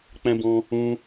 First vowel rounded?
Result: no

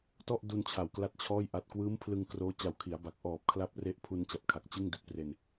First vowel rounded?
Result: yes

